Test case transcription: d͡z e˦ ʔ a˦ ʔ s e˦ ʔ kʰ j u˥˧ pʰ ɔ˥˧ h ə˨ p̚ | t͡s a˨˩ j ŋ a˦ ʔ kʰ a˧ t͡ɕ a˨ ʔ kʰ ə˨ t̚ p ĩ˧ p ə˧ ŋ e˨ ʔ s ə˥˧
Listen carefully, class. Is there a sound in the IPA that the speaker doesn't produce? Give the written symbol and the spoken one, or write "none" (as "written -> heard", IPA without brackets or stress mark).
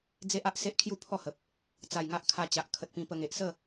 none